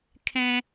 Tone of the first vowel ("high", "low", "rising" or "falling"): low